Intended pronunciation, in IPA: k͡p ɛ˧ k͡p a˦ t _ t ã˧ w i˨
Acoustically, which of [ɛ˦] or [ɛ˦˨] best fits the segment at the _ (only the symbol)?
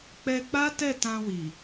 ɛ˦˨